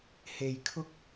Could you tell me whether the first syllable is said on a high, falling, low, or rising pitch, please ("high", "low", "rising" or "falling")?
low